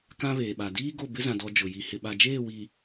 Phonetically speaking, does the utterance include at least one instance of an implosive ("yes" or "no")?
yes